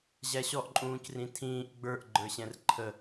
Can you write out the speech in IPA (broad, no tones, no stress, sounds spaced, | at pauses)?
ʑ æ ɕ ɔ ʔ ǃʼ ũː c r ĩ tʰ ĩː ʔ ɡ͡b ə˞ ʔ ɡ͡ǃ ə˞ ɕ ɛ̃ r ǃʰ ə